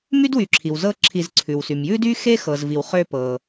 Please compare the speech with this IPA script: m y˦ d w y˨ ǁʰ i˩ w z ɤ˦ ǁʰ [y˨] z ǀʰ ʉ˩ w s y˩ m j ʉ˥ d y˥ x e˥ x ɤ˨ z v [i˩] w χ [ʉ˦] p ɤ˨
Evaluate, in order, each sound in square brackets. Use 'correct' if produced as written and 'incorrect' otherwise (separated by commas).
incorrect, incorrect, incorrect